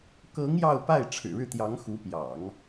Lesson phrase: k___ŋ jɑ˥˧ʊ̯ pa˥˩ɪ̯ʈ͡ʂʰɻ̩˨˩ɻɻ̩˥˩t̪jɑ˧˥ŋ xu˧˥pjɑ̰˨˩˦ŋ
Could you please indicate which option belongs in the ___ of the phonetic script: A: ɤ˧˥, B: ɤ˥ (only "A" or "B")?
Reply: A